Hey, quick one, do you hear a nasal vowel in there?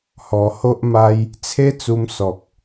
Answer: no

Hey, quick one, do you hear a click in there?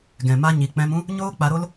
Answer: no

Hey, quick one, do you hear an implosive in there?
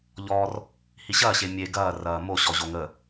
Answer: no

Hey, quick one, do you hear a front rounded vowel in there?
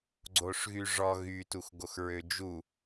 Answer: yes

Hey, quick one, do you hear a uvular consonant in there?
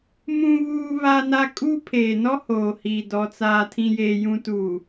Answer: no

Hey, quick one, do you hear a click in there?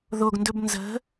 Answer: no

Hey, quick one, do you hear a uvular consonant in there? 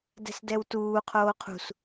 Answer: yes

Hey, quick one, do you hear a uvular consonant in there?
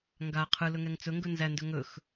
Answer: yes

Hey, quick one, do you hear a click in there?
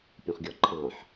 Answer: yes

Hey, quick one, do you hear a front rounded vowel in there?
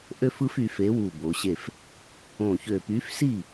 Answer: yes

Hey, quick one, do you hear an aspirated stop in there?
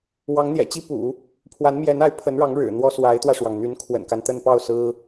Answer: yes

